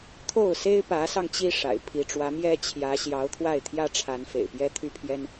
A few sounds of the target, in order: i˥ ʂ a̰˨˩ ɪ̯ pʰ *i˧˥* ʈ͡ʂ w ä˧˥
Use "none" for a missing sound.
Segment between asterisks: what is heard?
i˧˥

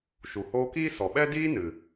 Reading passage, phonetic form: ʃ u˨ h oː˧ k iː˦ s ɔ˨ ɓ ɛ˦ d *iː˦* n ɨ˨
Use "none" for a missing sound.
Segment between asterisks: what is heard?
iː˦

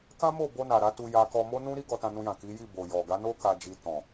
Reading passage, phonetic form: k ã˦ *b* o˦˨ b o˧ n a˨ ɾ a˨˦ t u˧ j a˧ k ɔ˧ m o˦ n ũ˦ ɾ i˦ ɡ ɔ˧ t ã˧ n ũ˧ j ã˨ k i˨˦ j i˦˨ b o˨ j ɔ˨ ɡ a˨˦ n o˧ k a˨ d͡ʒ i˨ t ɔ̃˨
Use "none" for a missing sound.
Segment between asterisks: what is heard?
m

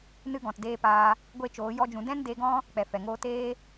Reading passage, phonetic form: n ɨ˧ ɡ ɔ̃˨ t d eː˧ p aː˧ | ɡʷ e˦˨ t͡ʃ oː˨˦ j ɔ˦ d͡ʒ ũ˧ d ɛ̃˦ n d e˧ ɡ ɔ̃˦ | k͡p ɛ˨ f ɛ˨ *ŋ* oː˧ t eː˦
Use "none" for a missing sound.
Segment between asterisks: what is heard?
ŋ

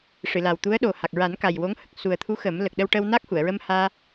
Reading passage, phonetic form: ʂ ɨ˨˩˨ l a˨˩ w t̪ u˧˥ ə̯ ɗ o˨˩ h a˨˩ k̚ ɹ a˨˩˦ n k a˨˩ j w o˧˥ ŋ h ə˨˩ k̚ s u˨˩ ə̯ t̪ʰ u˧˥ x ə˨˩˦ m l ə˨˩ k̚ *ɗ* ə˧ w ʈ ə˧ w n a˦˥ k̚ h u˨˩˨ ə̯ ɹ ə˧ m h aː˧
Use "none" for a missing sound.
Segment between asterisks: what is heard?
ɗ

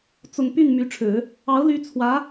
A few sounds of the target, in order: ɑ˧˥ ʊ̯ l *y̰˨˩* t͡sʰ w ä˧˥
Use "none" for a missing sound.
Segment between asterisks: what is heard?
y˧˥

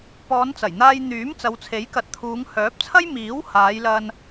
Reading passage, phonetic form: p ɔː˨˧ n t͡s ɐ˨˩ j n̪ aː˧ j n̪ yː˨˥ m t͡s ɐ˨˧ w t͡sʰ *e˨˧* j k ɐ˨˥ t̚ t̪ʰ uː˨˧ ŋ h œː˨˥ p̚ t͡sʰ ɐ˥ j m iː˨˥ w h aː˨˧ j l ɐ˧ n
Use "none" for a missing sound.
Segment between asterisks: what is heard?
e˨˥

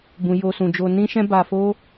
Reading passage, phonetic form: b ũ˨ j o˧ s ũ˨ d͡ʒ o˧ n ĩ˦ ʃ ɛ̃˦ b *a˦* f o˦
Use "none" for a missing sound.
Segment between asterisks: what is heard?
a˧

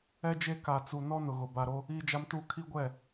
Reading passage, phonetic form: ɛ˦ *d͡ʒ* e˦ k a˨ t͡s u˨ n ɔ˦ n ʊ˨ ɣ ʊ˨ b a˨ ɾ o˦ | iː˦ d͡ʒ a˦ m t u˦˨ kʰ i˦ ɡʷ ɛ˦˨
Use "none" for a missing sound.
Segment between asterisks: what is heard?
d͡ʒ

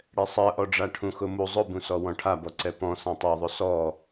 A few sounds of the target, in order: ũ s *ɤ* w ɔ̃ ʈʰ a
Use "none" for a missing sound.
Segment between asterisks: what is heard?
ɔ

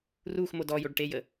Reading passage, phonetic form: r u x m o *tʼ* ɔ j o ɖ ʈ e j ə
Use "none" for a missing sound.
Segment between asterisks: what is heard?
d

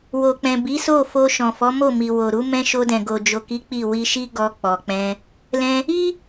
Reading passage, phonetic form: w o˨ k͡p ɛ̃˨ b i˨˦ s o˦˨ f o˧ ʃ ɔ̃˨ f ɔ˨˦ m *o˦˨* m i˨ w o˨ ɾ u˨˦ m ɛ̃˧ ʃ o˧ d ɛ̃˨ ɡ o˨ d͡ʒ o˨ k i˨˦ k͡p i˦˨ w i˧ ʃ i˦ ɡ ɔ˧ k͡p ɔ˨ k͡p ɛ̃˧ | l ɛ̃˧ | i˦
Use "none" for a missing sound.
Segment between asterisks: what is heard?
o˦˨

